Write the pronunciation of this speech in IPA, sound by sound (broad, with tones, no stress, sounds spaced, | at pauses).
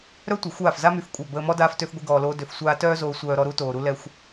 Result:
ɾ œ˦ tʷ ə˨ xʷ aː˦˨ f z a˦ m y˧ f kʷʼ œ˦˨ b əː˧ m ɔ˦ d aː˦ f t ø˦ f ɡʷ i˦ ɡ ɔː˧ l oː˦ d ø˧ f sʷ aː˦ t œː˦ z oː˧ sʷ œː˧ ɾ ɔ˧ ɾ u˦ t oː˧ ɾ u˧ l ɛ˧ xʷ